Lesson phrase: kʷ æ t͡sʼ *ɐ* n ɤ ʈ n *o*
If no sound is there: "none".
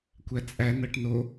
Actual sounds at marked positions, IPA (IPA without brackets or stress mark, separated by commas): æ, o